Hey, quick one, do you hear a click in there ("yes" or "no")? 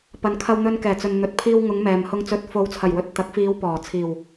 no